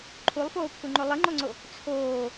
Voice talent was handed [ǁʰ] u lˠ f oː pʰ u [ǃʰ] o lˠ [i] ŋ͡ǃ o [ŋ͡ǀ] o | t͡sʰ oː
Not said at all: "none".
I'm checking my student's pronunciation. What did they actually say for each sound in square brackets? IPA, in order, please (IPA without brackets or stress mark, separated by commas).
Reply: ǃʰ, ŋ͡ǃ, ɨ, ŋ͡ǀ